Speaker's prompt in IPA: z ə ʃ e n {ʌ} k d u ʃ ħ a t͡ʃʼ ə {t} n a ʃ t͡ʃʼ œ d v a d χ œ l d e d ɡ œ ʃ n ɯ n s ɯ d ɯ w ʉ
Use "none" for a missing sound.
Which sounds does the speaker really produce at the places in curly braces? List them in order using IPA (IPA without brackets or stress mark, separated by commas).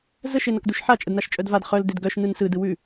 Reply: ʌ, d